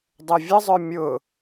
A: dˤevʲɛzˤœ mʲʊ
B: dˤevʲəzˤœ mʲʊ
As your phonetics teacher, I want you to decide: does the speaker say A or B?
B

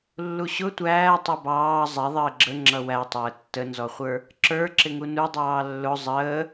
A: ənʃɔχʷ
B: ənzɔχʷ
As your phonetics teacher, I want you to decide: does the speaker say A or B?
B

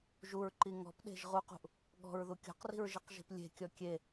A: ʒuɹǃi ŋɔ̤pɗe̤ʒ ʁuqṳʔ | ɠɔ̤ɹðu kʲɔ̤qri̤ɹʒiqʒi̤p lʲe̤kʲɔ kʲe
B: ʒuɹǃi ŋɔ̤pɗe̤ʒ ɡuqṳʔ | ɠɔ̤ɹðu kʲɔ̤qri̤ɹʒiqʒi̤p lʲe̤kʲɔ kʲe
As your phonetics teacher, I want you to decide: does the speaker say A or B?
A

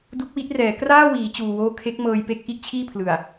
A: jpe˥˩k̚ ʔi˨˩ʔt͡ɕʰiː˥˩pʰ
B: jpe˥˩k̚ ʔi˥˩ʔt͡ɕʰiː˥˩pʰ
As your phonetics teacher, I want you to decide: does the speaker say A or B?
B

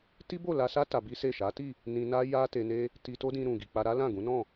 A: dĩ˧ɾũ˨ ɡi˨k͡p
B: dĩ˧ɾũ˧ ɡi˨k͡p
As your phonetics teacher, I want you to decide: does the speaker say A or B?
A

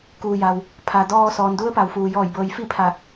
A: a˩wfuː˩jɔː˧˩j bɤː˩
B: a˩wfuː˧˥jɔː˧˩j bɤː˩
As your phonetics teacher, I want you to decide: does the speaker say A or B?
A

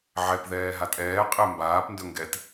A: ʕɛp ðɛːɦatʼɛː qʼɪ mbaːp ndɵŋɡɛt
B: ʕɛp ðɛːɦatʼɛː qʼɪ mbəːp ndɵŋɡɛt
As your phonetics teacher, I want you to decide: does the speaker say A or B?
A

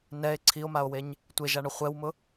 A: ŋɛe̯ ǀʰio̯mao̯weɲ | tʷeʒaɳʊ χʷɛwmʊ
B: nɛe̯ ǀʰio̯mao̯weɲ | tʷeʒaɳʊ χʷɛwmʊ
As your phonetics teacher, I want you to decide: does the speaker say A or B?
B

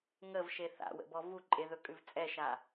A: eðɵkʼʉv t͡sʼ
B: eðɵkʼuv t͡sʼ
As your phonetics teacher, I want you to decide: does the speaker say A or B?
A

